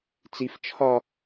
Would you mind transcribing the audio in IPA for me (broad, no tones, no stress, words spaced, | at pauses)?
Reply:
t͡sif t͡ʃʰɒ